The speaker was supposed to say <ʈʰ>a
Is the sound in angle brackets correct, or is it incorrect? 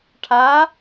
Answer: correct